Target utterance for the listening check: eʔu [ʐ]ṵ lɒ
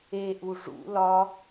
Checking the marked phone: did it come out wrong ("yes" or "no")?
no